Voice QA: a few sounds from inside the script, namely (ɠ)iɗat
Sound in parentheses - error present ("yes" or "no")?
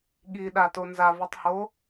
no